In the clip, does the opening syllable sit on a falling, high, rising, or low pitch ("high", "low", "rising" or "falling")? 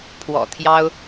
low